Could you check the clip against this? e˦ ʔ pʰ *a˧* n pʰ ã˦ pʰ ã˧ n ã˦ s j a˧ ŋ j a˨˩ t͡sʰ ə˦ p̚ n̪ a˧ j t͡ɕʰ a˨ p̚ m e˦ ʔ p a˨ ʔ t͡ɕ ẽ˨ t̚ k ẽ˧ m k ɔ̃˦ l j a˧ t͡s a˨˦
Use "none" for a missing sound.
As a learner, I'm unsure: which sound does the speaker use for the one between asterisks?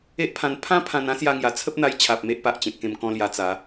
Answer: ã˧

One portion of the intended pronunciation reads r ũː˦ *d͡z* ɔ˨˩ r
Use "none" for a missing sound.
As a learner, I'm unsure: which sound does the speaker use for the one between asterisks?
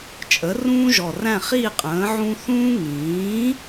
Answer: ʒ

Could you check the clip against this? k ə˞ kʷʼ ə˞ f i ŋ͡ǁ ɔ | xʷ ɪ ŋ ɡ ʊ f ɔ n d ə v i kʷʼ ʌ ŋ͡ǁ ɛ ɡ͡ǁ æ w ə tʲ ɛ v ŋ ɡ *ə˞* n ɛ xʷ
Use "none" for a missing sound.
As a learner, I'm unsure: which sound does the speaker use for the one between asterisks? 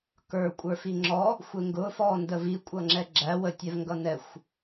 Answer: ʌ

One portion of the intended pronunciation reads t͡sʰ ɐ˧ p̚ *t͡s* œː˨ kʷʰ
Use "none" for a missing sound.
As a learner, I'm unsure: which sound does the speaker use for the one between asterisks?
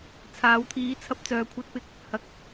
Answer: t͡s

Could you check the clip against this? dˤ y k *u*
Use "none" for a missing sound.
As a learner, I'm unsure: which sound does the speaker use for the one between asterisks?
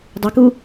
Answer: u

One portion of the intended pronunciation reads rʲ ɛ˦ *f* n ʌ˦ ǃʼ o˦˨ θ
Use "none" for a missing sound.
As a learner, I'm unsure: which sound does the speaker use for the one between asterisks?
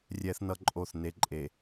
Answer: θ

